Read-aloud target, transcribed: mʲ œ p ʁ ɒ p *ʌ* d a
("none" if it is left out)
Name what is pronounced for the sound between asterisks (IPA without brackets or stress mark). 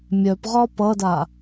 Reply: ʌ